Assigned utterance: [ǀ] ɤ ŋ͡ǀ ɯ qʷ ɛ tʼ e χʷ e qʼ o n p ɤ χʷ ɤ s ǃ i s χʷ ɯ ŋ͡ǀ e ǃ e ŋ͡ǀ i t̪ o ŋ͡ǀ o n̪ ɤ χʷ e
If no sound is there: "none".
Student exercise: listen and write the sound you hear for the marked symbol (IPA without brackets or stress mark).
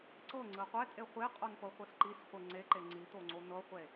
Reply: ǀ